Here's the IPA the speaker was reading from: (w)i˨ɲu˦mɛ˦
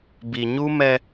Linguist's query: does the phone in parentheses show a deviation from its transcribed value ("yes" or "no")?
yes